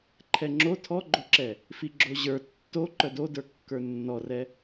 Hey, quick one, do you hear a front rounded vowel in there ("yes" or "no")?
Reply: yes